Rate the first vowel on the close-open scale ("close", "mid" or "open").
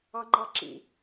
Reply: open